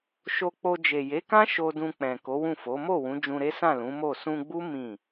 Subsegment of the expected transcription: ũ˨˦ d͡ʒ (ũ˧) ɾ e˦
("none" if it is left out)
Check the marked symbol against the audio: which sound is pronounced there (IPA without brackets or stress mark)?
ũ˧